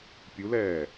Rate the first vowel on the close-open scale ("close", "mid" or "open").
close